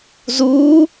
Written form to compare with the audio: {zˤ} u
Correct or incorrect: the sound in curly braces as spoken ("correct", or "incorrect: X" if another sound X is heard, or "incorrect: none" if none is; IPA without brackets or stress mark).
incorrect: z